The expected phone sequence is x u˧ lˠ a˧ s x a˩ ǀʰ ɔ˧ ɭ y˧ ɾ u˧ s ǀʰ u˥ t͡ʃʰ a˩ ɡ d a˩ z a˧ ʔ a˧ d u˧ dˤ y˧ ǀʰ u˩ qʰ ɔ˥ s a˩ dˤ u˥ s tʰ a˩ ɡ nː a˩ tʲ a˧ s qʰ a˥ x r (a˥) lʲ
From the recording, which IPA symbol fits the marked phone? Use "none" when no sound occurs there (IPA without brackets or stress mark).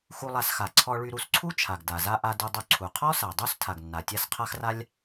a˥